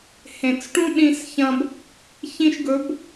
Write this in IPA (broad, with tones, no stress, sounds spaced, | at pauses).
h ẽ˨ t͡s ʈ ũ˦ ɗ ĩ˧ s ç ɐ̃˧ b | ç ĩ˧ ʃ ɡ ɵ˨˦ b